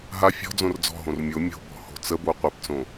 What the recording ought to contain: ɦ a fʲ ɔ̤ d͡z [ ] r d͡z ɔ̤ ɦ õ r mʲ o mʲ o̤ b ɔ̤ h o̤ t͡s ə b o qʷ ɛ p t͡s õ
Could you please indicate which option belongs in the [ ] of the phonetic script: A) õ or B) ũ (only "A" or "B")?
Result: A